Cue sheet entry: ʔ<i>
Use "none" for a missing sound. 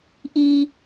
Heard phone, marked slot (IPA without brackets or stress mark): i